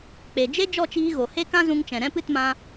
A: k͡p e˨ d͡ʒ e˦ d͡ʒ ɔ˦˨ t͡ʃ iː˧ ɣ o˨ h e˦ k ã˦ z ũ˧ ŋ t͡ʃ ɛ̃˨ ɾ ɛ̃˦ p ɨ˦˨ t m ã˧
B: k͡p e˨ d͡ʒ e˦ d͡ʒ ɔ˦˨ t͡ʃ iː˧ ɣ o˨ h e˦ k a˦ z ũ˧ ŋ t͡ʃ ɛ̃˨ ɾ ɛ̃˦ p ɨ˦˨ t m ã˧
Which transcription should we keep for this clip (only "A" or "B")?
A